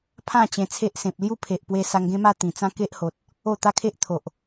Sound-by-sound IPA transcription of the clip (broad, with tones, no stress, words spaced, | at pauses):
pʰã˥˧ t͡ɕẽ˧t͡sʰe˦ʔsẽ˨p̚ lju˥˧pʰe˨ʔpwe˧ sa˧ŋɡẽ˦ma˥˧ t̪ĩ˨˩ t͡sã˦ke˦ʔho˨t̚ | o˥˧t̪a˦ kʰe˦ʔt̪ʰo˨ʔ